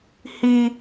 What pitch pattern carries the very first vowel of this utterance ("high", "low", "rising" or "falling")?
high